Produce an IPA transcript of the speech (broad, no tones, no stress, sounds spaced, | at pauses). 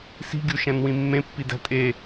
s i̤ ɡʲ u ʃ æ̃ n w ĩ mː ẽ pː i d æ̤ tʼ e